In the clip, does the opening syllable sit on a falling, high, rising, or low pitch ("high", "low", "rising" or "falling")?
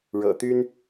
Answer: low